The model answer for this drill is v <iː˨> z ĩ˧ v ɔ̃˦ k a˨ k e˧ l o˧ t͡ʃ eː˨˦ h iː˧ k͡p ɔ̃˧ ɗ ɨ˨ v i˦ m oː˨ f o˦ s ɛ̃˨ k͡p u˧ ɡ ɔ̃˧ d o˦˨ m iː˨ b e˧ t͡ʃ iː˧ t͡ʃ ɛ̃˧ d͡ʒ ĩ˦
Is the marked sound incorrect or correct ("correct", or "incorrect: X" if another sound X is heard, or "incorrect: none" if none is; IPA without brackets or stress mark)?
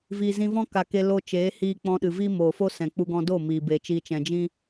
correct